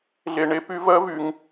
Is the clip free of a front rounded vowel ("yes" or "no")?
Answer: no